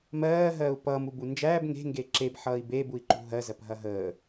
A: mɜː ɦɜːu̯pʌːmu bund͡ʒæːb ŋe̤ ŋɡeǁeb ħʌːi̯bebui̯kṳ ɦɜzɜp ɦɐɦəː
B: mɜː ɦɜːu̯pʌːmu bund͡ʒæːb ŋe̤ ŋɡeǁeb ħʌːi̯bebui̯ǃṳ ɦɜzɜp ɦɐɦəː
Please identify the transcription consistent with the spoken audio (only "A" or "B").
B